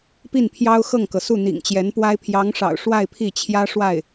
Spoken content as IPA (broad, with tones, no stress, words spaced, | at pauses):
pi˥˩npʰjɑ˥ʊ̯xɤ˥˩ŋkɤ˩ su˥˩n̪ḭ˨˩ŋt͡ɕjɛ˧˥npwa˥ɪ̯ pʰjɑ˧˥ŋʂɑ̰˨˩ʊ̯ ʂwa˥˧ɪ̯pʰi˥˩t͡ɕʰjä˥ ʂwa˥˩ɪ̯